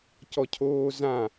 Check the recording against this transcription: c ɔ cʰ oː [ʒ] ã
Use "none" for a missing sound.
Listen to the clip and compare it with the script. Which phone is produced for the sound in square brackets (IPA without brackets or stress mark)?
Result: z